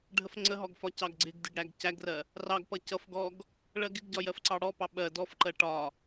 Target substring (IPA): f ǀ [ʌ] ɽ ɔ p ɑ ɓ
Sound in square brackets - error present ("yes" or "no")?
yes